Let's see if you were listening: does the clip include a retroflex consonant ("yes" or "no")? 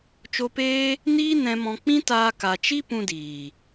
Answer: no